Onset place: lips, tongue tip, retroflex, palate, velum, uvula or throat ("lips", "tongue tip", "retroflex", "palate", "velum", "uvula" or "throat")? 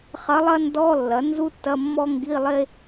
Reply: uvula